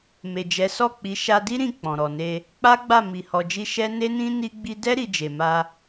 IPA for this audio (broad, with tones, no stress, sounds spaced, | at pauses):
m e˨ d͡ʒ ɛ˨˦ s ɔ˦˨ k͡p i˨˦ ʃ a˧ d i˦ ɾ ĩ˦˨ k͡p ɔ̃˨ ɾ ɔ˨ n e˧ | k͡p a˦ ɡ͡b a˦˨ m i˨ h ɔ˨ d͡ʒ i˧ ʃ ɛ˦ n e˦ n ĩ˦ n i˦ ɡ͡b i˦ d ɛ˦ ɾ i˧ d͡ʒ e˨ m a˧